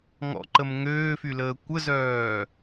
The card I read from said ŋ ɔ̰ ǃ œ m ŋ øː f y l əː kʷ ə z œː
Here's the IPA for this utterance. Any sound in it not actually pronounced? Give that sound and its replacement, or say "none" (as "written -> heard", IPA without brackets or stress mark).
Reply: œ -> ə